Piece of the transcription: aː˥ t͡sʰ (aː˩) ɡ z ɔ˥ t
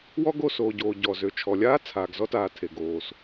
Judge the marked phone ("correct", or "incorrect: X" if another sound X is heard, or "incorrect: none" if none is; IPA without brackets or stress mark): correct